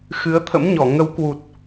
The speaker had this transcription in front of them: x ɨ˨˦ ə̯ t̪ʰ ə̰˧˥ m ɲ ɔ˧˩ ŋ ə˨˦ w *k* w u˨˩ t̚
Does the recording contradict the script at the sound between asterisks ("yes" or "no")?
no